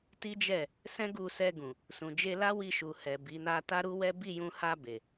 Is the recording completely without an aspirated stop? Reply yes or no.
yes